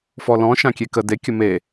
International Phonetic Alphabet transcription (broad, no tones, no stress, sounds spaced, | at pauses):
f ɔ l ɔ̃ ʃ ã kʲ e k ə d e kʲ ə m e